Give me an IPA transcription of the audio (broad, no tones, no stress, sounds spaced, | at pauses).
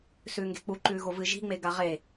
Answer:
s ʉː ŋ ɡ e̤ k͡p u ǃ ʉː ɣ o v ɨ ʒ i̤ ŋ͡m e ɡ a ʁ e